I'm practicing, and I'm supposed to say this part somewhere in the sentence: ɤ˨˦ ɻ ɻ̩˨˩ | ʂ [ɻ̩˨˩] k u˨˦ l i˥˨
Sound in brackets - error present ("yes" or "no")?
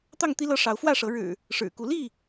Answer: no